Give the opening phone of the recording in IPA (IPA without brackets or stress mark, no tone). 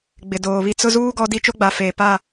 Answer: ɡ͡b